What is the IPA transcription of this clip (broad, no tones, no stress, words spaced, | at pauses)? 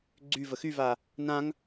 ɡ͡ǀy vəxyva | nãŋ